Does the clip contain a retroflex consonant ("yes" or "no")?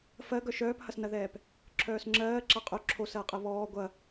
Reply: no